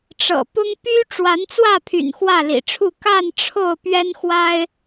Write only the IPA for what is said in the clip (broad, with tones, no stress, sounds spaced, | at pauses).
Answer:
ʈ͡ʂ ɤ̰˨˩ p ʊ˦ ŋ p y˦ ʈ͡ʂ w a˨˦ n t͡s w ä˥˨ pʰ y̰˨˩ n x w ä˥˨ l ḭ˨˩ ʈ͡ʂʰ u˥˨ k a˥˨ n ʈ͡ʂʰ o˥˨ ʊ̯ p ɥ ɛ˦ n x w a˦ ɪ̯